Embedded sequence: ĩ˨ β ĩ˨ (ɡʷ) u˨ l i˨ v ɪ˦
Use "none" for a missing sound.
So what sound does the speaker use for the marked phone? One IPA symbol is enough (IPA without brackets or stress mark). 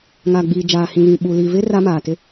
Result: ɓ